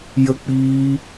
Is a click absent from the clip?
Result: yes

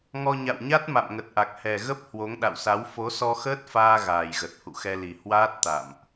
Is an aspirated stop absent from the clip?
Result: yes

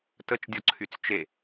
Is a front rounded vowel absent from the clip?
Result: no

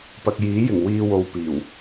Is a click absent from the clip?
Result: yes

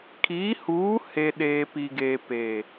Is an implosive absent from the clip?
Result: no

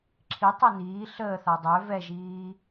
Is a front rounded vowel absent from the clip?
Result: no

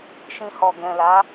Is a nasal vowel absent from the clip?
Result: no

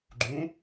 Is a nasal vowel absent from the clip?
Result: no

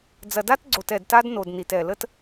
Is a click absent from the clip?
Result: no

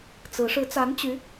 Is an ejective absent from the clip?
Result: yes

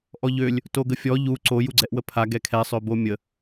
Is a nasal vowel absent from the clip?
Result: yes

